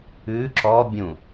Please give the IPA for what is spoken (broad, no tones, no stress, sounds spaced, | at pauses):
ʉ ǁ ɔ bʲ ũ